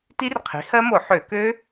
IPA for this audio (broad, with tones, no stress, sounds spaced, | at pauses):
t i˦˥ r qʰ i̤˩˥ h ɜ˦˥ m o˧˩˧ ħ ø˧˩˧ k ø˦˥